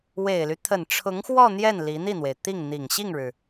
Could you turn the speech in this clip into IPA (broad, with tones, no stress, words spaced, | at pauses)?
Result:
we˨˩ɪ̯ly˦ t̪ʰə˨˩nʈ͡ʂʰʊ˧˥ŋxwɔ˥˧ n̪jɛ˥˩n li˧˥ n̪i˥˩n̪we˩ɪ̯ t̪i˥˩ŋn̪i˨˩ŋ ɕi˥˩ŋɻɻ̩˩